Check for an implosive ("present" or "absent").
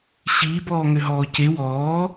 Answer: absent